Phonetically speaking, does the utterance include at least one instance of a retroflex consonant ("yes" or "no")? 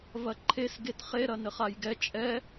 no